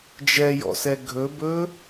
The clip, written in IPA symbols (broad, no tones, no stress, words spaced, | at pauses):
d͡ʒɛjɔ̰sɛ ɡʱɵbɵ